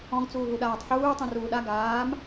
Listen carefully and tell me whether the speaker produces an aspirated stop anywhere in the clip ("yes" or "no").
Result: no